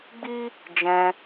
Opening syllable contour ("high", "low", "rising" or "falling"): high